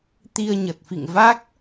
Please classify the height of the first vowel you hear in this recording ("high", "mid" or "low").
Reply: high